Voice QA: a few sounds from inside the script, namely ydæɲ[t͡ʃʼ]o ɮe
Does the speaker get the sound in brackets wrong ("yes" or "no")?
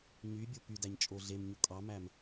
no